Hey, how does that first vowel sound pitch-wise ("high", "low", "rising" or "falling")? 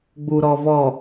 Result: low